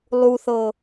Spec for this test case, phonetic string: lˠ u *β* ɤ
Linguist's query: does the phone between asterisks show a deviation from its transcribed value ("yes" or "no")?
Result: yes